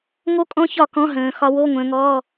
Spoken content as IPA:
ŋ o˦˥ kʼ ɔ̃˦˥ ç ɒ˥˩ k ɔ̃˧˥˧ ɦ ə̃ː˨˦ x ɒ˦˥ w o˧˥˧ ŋʷ ə̃ː˨˦ ŋ ɔː˧˥˧

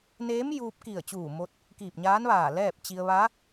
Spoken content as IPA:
n eː˧˥ m j uː˧ p̚ k i˧˩ ə̯ t͡ɕ uː˧˩ m o˧ t̚ | k iː˧˩ p̚ ɲ aː˧˥ n ʋ aː˧˩ l ɛː˥˨ p̚ t͡ɕ i˧ ə̯ ʋ a˧˥

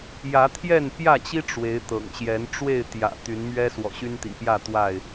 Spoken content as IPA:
j ä˨˦ t̪ʰ j ɛ˥˨ n p j ä˥˨ t͡ɕ i˦ ʈ͡ʂ w e˨˦ ɪ̯ t̪ ɤ̰˨˩ ŋ ɕ j ɛ˨˦ n ʈ͡ʂ w e˥˨ ɪ̯ t̪ j ä̰˨˩ t̪ y˨˦ n m ɥ ɛ˦ s w ɔ̰˨˩ ɕ y˦ n t̪ ḭ˨˩ p j ä˥˨ t̪ w a˥˨ ɪ̯

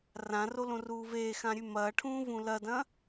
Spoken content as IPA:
r ã r o l õ r uː v eː x ã ɾʲ ʉ m ɐː ʈʰ ũː v ũ l ɐ d ɐ̃

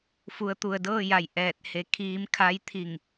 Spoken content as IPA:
f u˩˧ ə̯ t̪ u˩ ə̯ d ɤː˥˨ j a˧˩ j ʔ ɛː˧˩ t̚ h e˩˧ kʰ iː˧˥ m kʰ a˧˥ j t̪ʰ i˧˩ ŋ

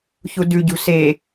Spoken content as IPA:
ç u d ʉ ɟ ṳ s e

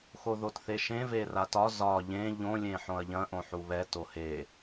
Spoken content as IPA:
x o ð o t θ e ʃ ẽ v e r a t ɒ z ɒ ʎ ẽ ʎ õ lʲ ẽ ħ õ ɐ̯ ʎ ɐ̃ ʔ õ ħ u β ɛ t o h e

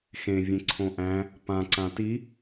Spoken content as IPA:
x ẽ vʲ ẽ ǀʰ õ ʔ æ̃ | p ã ǀ ã t i

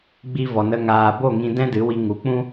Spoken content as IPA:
ɡ͡b i˧ v ɔ˨ n ə˧ ŋ aː˨ b o˦˨ ŋ ĩ˧ d ɛ̃˦ d ɨ˨˦ w i˧ ŋ u˨˦ k͡p ũ˦

